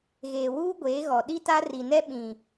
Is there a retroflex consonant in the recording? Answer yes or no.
no